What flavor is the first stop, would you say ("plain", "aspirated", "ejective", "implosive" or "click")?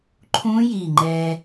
click